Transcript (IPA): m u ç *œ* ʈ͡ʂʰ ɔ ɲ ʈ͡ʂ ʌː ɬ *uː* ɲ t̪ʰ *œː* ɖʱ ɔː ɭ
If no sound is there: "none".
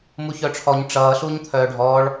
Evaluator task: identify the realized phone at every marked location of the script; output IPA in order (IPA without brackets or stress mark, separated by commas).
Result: œ, uː, œː